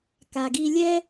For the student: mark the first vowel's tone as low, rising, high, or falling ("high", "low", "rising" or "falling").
low